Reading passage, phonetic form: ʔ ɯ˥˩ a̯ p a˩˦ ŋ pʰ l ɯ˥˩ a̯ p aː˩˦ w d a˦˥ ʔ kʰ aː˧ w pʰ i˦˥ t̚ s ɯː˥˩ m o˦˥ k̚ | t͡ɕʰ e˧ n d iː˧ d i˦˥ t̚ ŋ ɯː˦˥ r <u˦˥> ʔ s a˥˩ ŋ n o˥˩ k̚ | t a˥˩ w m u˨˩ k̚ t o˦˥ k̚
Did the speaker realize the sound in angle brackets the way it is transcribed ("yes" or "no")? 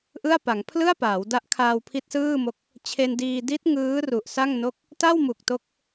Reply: no